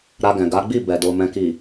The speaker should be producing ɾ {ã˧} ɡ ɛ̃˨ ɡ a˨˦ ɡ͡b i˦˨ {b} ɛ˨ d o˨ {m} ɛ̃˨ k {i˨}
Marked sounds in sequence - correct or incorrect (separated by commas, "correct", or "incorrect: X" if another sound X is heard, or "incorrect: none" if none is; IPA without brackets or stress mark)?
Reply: incorrect: a˧, correct, correct, correct